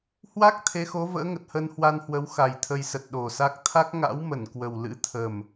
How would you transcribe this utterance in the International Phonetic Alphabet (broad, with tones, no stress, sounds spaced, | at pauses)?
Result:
h w a˦˥ k̚ t̪ʰ e˨˦ x o˨˦ v ə̰ː˧˥ ŋ ə˨˩ t̚ h ə˧ n h w a˧ n h w ə˨˦ w x a˨˩ j t̪ʰ ə˧ j s ə˨˩ t̚ ɗ o˨˩ s a˦˥ k̚ t̪ʰ a˦˥ k̚ ŋ a̰˧˥ w m ə˧˩ n k w ə˨˩ w l ɨ̰˧˥ t̪ʰ ə˨˩ m